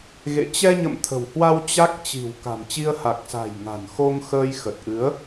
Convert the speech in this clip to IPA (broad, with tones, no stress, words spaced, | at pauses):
ɣḛ˧˨ t͡ɕɛ˧ɲə̰˧˨m t̪ʰə̤˨˩whwa˧w t͡ɕa˦˥k̚ t͡ɕi̤˨˩w ka̤˨˩mt͡ɕi˧ə̯ ha˨˩k̚sa̤˨˩jŋa̤˨˩n xo˧ŋxəː˧j xə˨˩t̚ʔɨ˨˦ə̯